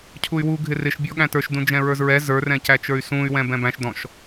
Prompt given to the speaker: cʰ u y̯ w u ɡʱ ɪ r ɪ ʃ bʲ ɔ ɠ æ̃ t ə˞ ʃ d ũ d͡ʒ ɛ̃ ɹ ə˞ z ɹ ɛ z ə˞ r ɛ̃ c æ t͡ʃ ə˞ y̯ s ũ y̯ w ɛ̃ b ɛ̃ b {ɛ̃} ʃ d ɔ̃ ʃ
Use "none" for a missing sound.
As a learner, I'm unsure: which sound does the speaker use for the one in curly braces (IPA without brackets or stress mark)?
æ̃